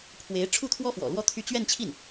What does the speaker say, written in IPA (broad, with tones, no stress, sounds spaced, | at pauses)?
pʰ w e˧˥ ɪ̯ ʈ͡ʂʰ u˥˩ t̪ʰ w ɔ˥ f w ɔ̰˨˩ l w ɔ˥ t̪ʰ y˥˧ t͡ɕ ɥ ɛ˥˧ n t͡ɕʰ i˥˩ n